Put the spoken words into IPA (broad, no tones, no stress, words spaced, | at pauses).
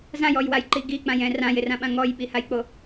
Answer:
zãjɔjwajǃi ɡik͡pãjɛ̃ rãjɪrãɓã ŋɔjɓihajk͡po